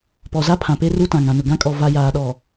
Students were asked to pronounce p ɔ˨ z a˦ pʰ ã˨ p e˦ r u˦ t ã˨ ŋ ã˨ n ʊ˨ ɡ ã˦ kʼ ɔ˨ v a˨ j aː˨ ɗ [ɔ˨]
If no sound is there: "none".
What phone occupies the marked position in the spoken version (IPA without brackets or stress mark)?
ɔ˨